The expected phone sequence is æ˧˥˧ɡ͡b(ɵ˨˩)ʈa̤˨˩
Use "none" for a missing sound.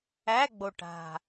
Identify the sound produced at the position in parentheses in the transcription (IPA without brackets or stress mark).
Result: o˨˩